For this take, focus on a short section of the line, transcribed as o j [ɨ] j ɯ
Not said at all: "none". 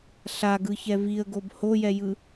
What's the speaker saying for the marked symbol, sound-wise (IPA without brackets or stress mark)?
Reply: ɛ